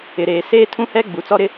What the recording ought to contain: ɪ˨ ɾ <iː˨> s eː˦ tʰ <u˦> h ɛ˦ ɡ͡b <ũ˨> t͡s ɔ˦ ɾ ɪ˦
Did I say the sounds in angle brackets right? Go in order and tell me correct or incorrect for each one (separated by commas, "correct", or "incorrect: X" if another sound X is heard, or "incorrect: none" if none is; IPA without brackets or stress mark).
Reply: incorrect: eː˨, incorrect: ũ˦, incorrect: u˨